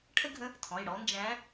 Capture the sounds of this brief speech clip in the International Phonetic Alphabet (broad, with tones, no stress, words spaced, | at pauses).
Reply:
ʈʰə˥ɡʱə̃˧˥ | tʰɔ̃˩˧˩jɽɔ˧˥ nd͡ʒæ̃˧˥